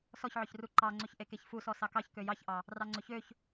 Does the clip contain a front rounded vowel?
yes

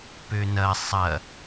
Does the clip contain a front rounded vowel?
yes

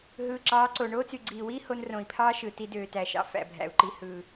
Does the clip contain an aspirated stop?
yes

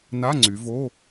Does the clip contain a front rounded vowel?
yes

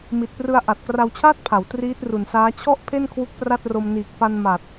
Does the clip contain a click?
no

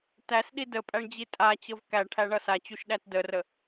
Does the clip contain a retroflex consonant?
yes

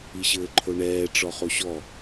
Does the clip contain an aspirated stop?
yes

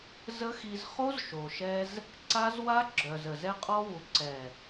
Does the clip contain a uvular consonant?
yes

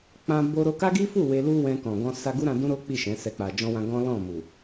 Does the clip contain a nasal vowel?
yes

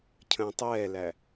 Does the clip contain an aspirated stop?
yes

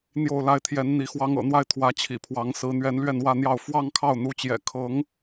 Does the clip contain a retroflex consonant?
no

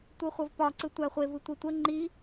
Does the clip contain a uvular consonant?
yes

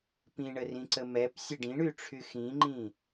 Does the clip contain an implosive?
no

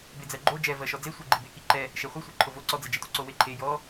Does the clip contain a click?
yes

